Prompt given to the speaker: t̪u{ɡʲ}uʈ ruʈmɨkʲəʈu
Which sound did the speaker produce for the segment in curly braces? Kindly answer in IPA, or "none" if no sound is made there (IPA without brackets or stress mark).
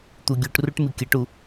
ɡʲ